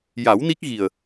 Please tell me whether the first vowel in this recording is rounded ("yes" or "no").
no